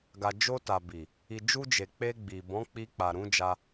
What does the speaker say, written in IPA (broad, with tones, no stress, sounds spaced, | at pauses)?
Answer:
ɡ a˨ d͡ʒ o˧ t a˨ b i˨ | i˨ d͡ʒ u˧ d͡ʒ e˨ k͡p e˧ ɡ͡b i˨ b ɔ̃˨˦ k͡p i˧ k͡p a˨ ɾ ũ˨˦ d͡ʒ a˧